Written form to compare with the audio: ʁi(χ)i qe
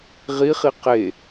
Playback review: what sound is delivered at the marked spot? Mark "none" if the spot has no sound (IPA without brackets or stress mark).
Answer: χ